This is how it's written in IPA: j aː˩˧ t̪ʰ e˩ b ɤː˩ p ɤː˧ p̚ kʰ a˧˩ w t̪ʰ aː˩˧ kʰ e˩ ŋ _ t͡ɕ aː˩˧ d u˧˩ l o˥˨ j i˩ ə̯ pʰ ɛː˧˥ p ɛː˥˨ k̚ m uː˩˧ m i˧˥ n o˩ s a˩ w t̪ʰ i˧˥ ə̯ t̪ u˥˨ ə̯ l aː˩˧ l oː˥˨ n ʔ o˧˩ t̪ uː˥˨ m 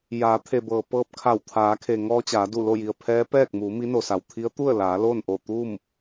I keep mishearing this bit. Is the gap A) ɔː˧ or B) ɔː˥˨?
A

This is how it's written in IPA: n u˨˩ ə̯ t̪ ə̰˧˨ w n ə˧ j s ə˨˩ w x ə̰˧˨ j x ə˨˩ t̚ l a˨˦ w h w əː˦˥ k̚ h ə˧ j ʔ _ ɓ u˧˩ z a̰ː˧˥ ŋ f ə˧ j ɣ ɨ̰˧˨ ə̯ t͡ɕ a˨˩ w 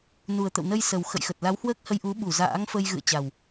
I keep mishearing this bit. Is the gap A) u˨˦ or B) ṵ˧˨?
A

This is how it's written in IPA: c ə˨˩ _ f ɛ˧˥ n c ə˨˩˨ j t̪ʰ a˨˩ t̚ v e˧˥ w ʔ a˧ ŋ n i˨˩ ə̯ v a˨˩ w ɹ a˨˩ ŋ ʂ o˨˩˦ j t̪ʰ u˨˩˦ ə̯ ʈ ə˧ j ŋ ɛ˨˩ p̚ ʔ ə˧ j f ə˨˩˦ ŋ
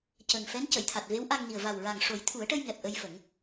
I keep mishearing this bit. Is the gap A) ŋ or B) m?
A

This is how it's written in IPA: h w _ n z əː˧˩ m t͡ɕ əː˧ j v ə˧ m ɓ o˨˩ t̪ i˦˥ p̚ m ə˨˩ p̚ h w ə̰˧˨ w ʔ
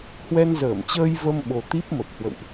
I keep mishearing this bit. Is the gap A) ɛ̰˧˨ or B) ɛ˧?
B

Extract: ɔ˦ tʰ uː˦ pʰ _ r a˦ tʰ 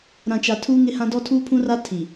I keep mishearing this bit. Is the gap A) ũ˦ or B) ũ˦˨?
A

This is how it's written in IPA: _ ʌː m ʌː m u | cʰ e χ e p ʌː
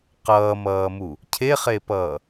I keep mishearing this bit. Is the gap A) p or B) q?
B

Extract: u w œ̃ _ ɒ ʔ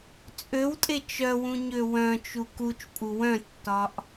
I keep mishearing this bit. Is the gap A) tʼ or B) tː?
B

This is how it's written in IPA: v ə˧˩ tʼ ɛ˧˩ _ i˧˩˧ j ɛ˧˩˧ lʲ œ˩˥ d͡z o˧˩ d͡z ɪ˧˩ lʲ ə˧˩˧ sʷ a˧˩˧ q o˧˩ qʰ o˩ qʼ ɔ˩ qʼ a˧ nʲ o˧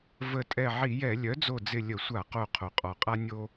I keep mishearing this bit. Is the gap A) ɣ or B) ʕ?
B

